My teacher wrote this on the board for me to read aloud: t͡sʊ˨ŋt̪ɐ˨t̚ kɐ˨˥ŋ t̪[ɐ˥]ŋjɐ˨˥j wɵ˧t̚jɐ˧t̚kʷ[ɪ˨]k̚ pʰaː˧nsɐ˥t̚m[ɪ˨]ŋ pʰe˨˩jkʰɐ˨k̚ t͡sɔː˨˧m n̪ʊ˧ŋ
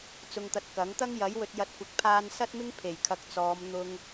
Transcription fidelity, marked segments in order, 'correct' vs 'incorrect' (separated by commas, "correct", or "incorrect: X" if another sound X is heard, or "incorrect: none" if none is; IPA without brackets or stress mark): correct, incorrect: ɪ˨˥, incorrect: ɪ˥